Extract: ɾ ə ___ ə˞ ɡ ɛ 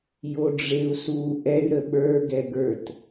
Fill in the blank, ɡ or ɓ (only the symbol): ɓ